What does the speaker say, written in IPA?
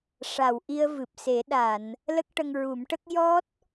ʂ a˨˩˨ w ʔ i˧ ə̯ v ɨ˨˩ p̚ s e˨˩˦ ɗ a˨˩˨ n | l ə˦˥ k̚ ʈ ə˧ ŋ ɹ u˨˩˦ m ʈ ə˦˥ k̚ j ɔ˦˥ t̚

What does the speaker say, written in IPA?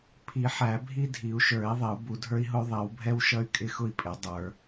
pʰ i˨˩˦ ħ æ˨˩˦ bʱ i˥ dʱ i˨˩˦ u̯ ʃ ə˞˨˩˦ i̯ ðˤ ɪ˨˩˦ u̯ b u˨˩˦ dʱ ə˞˥ i̯ ɦ ʊ˥ y̯ ðˤ i˨˩˦ w bʱ ɛ˥ w ʃ ʌ˥ y̯ kʼ ɪ˥ x ʊ˥ i̯ pʼ ɪ˨˩˦ dˤ ə˞˨˩˦

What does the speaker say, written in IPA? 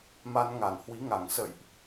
m a˧ n ŋ a˧˩ n h w i˨˦ ŋ a˧˩ ŋ s ə̰˧˨ j ʔ

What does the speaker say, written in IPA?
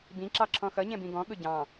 b ĩ ǁ ɑ ǁʰ ɔ̃ x ʌ ɲ ɛ̃ b ĩ ɡ ɔ̃ ɠ ʊ ɟ ɑ̃

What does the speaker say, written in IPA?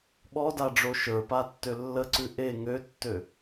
ɓ ɔ d a ɖ͡ʐ o ʃ ə˞ p a tː ø lː ə ǀ ʉ ʔ e ŋ ø tː ø

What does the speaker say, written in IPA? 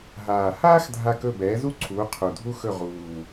ɦ aː˨˩ h aː˥ x dʱ a˦˨ k ɵ˦˨ b ɛː˨˥ z u˥ ǀʰ uː˨˥ qʰ u˨˩ dʱ u˥ x ɵ˦˨ ʁ uː˨˩

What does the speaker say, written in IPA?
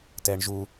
t ɛ ɳ ʒ u

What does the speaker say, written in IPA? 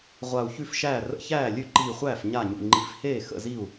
ʁʷ a˧˩ u̯ ç ʉ˥˩ f ʃ æː˥˩ r ə̰˥˩ ç æː˥˩ lʲ ʉ˥˩ ǃ iː˧˩ χʷ æː˥˩ f ɲ a˥˩ ɲ ṵ˧˩ ŋ͡ǃ i˧˩ f h eː˥˩ x ə̰˥˩ z i˥˩ u̯

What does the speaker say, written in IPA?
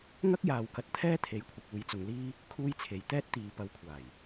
ŋ ɐ˥ k̚ j aː˨ w k ɐ˧ t̚ t̪ʰ ɛː˥ t̪ʰ e˨˥ j kʷʰ ɐ˨ k̚ uː˨˧ j t͡s ʊ˨ ŋ l iː˥ | kʰ uː˧ j t͡sʰ e˨˩ j t̪ ɛː˥ t̚ t̪ iː˨˧ p ɐ˨˥ w kʷʰ aː˨˩ j

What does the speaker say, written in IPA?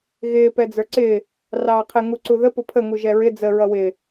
ɣ ɪː p ɛ d͡z ə˞ ǀ ɪː | r ɑː qʰ ɪ ŋ u ǀ u ð ə p ʊ pʰ ə ŋ u ʒ ɛ ɹ ɪ d͡z ə ɹ ʌ w ɪː

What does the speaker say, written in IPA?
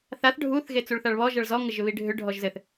θ a θ ɖʱ u θ ɣ e t͡s u ɭ θ a ɭ β ɔ ʒ ʌ ɭ z ɔ ŋ ə ʒ ʏ β i ɖʱ ʏ ɖʱ ɔ ʒ z ɘ θ

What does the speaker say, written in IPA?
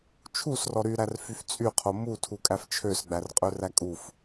t͡ʃʰ u s r ɔ ɾ y ɾ æ r f y f t͡sʼ y qʰ o m u tʰ u kʼ æ f t͡ʃʰ ø s ɡ͡b æ r qʼ ø r æ kʼ u f

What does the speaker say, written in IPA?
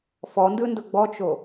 f ɔ n d ɯ n d ʊ ɡ͡b ɔ t͡ʃ o

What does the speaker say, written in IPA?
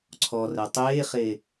ǀʰ ɔ r ɛ tˤ eː χ e

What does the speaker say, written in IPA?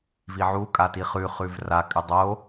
v i ʕ u kʼ a t i χ ʉ χ ʉ v r a kʼ ɨ dˤ o

